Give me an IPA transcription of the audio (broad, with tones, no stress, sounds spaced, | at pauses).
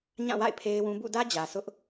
ɲ ã˦˨ w a̰˦˨ ɪ̯ pʰ e˦ ɪ̯ w ũ˦ b ṵ˦˨ d ä˦ d͡ʑ ä˨ s ʊ˦ ʔ